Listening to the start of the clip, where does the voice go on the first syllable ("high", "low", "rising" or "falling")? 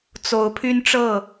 rising